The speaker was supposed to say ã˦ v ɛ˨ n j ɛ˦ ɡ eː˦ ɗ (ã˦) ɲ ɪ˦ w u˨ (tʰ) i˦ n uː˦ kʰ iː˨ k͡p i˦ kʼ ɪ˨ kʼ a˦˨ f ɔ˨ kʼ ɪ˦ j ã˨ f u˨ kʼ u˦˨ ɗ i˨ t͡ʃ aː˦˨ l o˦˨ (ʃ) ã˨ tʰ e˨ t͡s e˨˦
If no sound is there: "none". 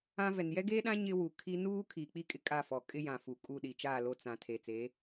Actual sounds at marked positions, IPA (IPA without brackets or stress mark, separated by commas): ã˦, kʰ, t͡s